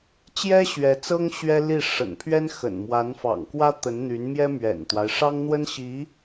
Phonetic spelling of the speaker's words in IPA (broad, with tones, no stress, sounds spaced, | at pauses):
t͡ɕ j ɛ˥ ɕ ɥ ɛ˧˥ t͡s ɤ˥ ŋ ɕ ɥ ɛ˥ l i˥˩ ʂ ə̰˨˩ n pʰ ɥ ɛ˥ n x ə̰˨˩ n m w a˧˥ n f ɑ̰˨˩ ŋ k w ä˥ t̪ ə˧˥ n n̪ y˧˥ n m j ɛ˥ m ɥ ɛ̰˨˩ n t̪ w a˦ ɪ̯ ʂ ɑ˥ ŋ n̪ w ə˥ n ɕ i˧˥